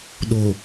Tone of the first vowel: low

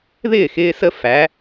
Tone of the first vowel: falling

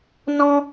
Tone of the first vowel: high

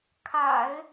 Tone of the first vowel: low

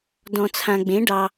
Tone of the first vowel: low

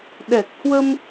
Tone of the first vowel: low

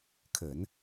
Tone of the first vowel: low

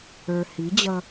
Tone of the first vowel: low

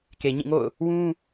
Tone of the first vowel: low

